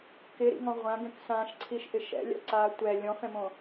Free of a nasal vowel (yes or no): no